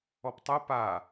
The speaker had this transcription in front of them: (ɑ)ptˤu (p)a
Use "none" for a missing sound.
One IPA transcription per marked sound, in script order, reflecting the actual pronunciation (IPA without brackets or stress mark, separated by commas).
ɔ, p